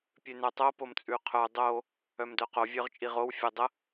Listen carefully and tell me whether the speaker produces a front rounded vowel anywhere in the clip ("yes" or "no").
yes